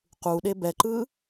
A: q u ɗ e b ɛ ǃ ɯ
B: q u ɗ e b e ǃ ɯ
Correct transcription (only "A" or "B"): A